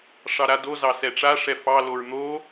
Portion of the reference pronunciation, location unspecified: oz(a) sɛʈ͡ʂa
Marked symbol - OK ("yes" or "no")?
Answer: no